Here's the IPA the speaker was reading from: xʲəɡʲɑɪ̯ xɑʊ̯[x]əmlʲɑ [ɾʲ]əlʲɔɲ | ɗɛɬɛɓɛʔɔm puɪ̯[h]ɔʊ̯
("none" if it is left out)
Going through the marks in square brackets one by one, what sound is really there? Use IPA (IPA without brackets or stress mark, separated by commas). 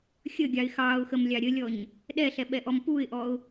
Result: x, ɾʲ, ʔ